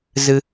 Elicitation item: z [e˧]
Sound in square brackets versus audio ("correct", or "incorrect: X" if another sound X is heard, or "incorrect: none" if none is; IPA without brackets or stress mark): incorrect: ɨ˧